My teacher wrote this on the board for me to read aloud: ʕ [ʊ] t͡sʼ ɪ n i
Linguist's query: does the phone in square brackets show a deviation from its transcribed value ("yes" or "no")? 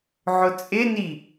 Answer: no